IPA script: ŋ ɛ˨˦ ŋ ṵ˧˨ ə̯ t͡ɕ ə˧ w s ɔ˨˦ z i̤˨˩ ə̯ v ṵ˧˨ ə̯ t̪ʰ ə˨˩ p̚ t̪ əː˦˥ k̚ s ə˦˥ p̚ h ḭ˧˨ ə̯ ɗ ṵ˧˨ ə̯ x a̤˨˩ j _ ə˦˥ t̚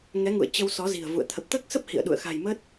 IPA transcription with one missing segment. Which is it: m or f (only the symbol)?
m